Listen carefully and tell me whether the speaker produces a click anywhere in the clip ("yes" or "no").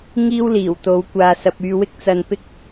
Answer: no